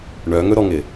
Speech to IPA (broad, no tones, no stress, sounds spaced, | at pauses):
ɳ œ ŋ ɵ ɾ ɔ ŋ ɪ